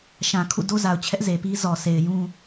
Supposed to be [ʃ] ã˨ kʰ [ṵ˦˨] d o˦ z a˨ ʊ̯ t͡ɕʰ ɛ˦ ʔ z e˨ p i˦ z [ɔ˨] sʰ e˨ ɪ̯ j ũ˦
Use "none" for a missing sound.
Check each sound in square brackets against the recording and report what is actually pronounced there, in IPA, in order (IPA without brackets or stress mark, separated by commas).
ʃ, ṵ˦˨, ɔ˨